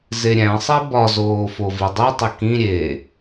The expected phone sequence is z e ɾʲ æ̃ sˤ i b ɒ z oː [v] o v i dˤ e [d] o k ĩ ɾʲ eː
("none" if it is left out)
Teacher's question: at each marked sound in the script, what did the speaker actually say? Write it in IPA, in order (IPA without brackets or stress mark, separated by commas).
f, tˤ